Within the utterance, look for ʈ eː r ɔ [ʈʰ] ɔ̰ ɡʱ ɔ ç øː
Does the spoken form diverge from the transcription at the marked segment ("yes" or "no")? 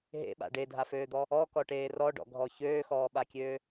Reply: yes